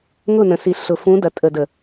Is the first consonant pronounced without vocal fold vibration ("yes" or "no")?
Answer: no